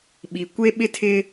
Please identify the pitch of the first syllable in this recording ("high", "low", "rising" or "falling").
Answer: low